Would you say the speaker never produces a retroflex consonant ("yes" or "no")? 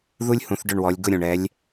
no